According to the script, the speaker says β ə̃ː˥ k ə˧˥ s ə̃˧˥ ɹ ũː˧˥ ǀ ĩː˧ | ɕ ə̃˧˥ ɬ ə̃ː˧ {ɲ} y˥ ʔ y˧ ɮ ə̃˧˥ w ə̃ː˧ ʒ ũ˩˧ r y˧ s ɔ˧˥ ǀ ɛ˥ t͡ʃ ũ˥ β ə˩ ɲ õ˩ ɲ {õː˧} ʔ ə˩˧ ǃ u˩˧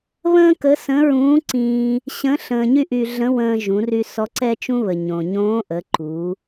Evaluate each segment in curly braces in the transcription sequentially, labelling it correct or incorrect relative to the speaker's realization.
correct, incorrect: õː˧˥

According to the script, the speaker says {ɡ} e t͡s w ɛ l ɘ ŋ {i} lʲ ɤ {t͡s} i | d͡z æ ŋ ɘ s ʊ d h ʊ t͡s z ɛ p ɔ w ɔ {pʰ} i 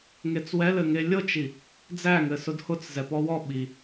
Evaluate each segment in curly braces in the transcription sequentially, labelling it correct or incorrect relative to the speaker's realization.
incorrect: ŋ, incorrect: e, incorrect: t͡ʃ, incorrect: ɓ

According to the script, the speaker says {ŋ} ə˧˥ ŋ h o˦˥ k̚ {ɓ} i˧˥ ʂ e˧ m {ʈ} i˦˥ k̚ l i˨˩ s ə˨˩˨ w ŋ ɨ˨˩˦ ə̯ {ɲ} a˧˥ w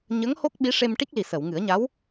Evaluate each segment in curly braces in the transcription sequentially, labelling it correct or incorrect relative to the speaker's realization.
incorrect: ɲ, correct, correct, correct

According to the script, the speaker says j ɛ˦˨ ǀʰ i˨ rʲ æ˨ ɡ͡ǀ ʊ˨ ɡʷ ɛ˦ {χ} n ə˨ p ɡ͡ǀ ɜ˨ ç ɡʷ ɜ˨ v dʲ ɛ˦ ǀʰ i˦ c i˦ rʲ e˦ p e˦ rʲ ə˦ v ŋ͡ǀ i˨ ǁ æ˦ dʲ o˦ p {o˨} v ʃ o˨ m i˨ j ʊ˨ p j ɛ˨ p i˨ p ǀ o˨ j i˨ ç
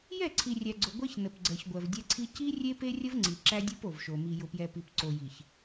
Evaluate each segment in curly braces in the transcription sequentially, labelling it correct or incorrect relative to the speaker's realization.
incorrect: ç, correct

